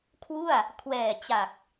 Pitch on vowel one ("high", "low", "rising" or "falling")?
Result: falling